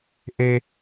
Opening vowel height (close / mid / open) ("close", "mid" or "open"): mid